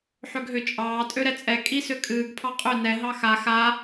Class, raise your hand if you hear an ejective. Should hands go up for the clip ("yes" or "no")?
yes